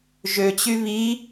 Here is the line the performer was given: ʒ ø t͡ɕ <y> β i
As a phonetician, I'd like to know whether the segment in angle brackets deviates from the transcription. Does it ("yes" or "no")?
no